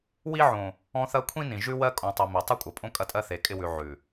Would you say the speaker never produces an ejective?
no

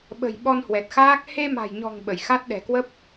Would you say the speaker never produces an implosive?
no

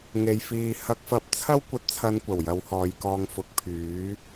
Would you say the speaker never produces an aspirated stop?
no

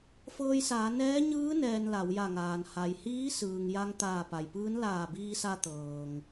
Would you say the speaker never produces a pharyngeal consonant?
yes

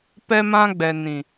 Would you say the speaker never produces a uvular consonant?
yes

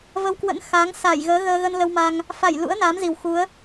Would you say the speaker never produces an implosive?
yes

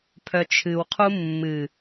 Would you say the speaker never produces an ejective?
yes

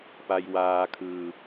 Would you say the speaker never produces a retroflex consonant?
yes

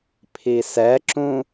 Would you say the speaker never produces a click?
no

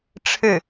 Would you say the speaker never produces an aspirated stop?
no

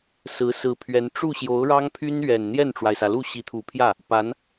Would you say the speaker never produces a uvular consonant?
yes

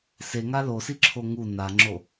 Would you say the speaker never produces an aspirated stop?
no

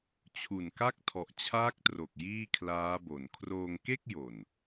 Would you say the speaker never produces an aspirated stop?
no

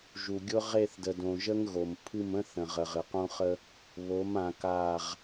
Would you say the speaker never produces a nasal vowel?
no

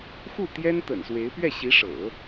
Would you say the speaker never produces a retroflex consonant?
no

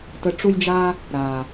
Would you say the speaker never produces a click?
yes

